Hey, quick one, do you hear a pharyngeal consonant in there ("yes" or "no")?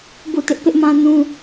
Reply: no